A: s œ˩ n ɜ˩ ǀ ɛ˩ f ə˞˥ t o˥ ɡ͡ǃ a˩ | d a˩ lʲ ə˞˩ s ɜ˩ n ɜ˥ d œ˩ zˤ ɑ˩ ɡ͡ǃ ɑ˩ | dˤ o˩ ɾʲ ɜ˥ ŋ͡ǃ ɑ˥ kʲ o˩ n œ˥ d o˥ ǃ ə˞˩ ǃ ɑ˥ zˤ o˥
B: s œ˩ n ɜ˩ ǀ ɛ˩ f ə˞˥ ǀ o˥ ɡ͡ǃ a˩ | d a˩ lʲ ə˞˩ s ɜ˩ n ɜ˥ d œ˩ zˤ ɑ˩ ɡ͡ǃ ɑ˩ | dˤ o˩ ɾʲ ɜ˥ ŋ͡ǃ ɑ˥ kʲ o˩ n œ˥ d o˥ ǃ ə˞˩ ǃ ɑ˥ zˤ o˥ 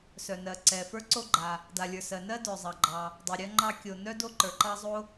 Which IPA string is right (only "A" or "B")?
B